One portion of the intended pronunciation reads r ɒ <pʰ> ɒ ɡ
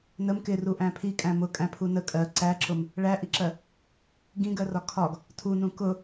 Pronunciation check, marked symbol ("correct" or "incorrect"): incorrect